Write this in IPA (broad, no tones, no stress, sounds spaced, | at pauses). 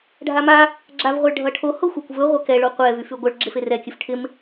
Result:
ɖʱ a m a | ɡ͡ǁ a v ʁʷ ɛ ɭ ɖʱ ʌ ʈʰ o h o xʷ a kʷ v ɵ ʁʷ e k ɛ ɭ o qʷ ɛ v y f y ɡʷ ʌ ɭ ɡ͡ǁ ɪ f e r ɛ kʲ ɵ f ʈʰ ɪ m